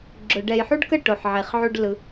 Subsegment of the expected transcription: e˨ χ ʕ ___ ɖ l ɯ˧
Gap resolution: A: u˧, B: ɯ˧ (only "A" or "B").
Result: A